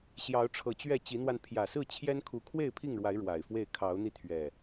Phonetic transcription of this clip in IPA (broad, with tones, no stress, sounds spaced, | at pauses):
ɕ j ɑ˨˦ ʊ̯ ʈ͡ʂʰ ɤ˨˩ t͡ɕ ɥ ɛ˥˨ t͡ɕ i˨˦ n̪ w a˧ n pʰ j ä˨˩ s ɹ̩˥˨ t͡ɕʰ j ɛ˦ n kʰ u˨˦ kʰ w e˥˨ ɪ̯ pʰ i˥˨ ŋ ɻ w a˨˦ ɪ̯ ɻ w a˨˩ ɪ̯ f w e˥˨ ɪ̯ kʰ ɑ˨˦ ʊ̯ n̪ i˧ t̪ʰ ɥ ɛ˨˩